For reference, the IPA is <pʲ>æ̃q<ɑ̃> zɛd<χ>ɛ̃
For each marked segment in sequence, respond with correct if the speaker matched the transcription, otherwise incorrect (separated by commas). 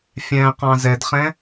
incorrect, correct, correct